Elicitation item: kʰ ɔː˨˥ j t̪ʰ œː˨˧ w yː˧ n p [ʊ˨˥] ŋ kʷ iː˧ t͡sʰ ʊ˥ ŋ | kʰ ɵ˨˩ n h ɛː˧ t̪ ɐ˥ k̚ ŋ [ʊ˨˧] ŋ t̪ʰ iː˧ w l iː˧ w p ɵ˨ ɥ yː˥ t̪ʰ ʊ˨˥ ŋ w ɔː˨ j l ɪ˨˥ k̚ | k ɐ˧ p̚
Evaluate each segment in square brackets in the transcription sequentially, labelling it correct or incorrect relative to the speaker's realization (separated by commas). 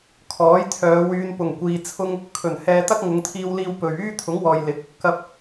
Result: incorrect, correct